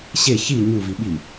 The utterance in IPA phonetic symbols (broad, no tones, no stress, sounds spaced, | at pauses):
ɕ e ç i ɲ u v i ɓ i